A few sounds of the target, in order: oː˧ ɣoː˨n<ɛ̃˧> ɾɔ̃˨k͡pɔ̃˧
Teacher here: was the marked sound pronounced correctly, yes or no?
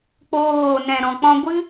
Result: no